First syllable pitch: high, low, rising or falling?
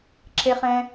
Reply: high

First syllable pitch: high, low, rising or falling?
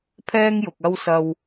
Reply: high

